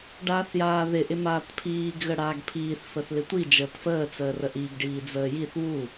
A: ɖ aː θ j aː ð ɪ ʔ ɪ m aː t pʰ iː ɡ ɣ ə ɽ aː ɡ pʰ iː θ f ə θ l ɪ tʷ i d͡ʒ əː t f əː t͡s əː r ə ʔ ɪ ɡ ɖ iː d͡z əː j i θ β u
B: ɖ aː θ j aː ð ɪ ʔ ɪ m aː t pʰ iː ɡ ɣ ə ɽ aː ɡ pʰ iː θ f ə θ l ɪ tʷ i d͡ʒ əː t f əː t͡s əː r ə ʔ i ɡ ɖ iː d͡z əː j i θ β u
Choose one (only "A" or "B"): B